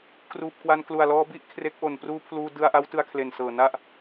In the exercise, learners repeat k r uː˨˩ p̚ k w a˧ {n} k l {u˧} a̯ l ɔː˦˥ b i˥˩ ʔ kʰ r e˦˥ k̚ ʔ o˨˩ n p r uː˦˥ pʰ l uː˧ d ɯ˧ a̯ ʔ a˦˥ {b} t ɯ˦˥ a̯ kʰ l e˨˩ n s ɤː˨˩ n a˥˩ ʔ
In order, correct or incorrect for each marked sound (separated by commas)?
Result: correct, incorrect, incorrect